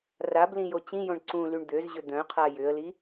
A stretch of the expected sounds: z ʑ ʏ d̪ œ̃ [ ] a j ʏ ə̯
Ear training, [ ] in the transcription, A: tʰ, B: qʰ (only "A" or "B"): B